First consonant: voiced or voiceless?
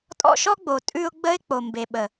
voiceless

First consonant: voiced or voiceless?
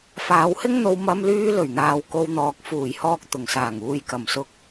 voiceless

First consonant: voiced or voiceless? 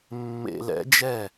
voiced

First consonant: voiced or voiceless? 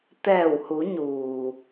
voiceless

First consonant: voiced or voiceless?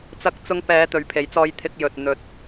voiceless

